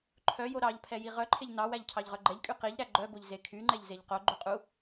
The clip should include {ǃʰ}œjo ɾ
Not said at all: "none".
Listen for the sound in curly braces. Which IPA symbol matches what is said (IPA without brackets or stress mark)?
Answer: ǃʰ